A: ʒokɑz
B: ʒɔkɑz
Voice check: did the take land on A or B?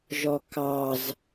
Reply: B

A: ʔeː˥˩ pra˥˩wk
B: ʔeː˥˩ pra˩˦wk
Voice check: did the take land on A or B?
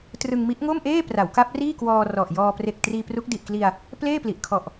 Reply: B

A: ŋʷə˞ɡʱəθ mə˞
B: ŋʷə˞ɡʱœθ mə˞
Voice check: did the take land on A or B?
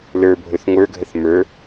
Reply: A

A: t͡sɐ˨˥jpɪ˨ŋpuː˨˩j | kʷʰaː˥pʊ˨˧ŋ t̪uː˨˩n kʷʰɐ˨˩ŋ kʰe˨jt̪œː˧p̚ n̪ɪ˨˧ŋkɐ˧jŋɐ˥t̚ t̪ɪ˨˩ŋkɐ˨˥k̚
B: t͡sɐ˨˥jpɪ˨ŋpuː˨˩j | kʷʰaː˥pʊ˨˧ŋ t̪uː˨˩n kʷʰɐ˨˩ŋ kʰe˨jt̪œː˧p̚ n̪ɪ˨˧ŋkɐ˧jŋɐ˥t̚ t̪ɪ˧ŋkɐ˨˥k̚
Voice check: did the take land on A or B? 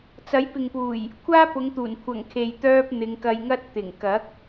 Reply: A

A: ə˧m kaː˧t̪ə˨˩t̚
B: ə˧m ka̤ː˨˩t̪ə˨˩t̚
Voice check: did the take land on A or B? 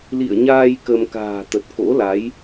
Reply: B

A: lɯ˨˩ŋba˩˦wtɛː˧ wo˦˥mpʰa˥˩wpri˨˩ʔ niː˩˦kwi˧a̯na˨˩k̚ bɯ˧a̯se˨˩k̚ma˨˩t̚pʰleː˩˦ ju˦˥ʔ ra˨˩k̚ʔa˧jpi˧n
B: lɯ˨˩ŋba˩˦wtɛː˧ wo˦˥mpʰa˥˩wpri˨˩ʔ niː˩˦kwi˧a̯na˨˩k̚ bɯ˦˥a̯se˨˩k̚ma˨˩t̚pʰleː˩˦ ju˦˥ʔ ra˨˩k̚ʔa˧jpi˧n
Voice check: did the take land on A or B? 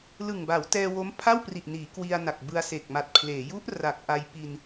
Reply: A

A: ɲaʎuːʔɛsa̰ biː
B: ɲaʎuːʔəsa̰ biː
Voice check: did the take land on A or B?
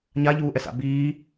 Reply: A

